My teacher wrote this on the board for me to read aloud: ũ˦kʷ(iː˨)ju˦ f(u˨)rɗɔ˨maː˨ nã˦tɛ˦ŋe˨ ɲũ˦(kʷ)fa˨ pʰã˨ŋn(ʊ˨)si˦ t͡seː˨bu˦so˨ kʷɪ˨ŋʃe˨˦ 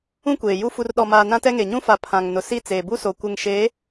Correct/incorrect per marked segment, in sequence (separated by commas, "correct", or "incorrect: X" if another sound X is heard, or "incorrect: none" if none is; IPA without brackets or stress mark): incorrect: eː˨, correct, incorrect: none, correct